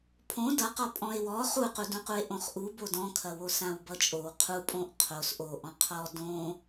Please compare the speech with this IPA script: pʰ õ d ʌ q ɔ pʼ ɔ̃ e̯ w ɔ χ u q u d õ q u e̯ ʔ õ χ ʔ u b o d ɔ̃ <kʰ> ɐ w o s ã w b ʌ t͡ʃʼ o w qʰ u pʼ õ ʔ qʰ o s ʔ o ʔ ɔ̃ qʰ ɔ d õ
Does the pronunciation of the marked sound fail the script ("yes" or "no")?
no